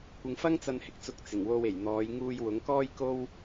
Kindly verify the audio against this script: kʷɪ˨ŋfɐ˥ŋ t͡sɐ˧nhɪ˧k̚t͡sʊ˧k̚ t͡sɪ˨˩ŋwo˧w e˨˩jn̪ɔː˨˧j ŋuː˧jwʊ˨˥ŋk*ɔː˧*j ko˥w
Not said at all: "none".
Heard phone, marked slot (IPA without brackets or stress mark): ɔː˥